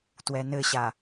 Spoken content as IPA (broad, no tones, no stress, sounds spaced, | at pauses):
t w ɛ n ɘ ɕ a